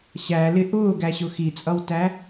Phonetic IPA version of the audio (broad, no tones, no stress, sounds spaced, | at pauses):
ɕ æ l ɪ ʔ ʊː ɡ æ ɕ ʊ x i t͡sʼ ʌ w t æ